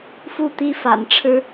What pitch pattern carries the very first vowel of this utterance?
falling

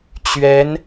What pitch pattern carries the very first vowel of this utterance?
rising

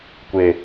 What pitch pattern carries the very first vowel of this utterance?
low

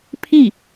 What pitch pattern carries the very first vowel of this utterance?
falling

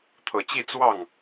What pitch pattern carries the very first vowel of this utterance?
low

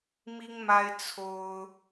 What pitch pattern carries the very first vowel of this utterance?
high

